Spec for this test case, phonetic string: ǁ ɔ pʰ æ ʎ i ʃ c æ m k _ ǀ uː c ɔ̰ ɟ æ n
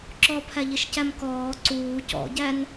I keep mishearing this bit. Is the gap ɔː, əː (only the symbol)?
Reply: ɔː